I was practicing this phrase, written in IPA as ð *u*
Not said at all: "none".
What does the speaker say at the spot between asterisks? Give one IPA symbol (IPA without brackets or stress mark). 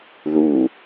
u